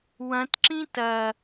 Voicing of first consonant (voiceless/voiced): voiced